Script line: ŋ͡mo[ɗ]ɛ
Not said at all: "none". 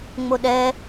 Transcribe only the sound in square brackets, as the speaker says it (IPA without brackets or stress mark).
ɗ